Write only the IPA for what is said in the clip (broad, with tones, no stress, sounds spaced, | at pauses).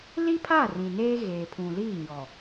l i˦ pʰ a˦˨ r ĩ˨ n eː˦ ɣ eː˨ pʰ ũ˨ l iː˦˨ ɲ ɔ˨